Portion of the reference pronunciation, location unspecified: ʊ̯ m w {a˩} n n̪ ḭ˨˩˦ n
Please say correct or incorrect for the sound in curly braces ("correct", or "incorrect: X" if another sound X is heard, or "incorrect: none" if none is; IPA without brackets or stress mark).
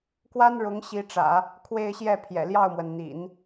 incorrect: ə˩